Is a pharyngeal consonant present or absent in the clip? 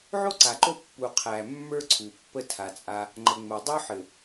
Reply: present